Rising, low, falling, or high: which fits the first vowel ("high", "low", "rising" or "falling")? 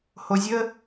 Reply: low